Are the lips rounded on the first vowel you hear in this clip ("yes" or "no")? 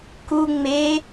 yes